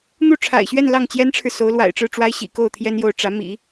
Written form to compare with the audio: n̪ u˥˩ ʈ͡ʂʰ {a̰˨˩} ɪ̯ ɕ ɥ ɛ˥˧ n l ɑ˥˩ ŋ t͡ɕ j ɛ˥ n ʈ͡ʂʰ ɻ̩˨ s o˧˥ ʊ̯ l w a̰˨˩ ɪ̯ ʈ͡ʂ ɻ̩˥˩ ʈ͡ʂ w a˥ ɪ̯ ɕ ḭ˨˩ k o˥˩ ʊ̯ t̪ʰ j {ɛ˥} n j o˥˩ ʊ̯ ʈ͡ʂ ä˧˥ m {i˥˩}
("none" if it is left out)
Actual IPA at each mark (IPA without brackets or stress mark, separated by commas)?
a̰˨˩, ɛ˥, ḭ˨˩˦